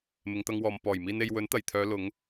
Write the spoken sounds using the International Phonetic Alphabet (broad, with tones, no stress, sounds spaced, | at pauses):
m ɪ˨˧ ŋ t̪ ɐ˧ ŋ w ɔː˨ m p ɔː˨˩ j m iː˨ n e˨ j w ɵ˨˥ n t̪ ɐ˨˩ j t̪ʰ œː˨˧ l ʊ˨˧ ŋ